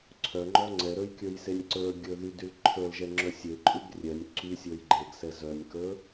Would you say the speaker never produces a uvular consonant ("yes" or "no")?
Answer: yes